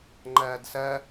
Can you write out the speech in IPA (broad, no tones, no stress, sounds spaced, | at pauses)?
ŋ͡ǃ ɐː d s ɐ